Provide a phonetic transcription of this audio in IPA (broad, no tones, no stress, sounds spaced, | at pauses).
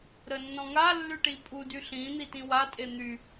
ɾ ə nː ɔ̃ ŋ a lː y ʈ i pʼ u d y ɬ ĩ n̪ i t ĩ w a tʼ e n̪ y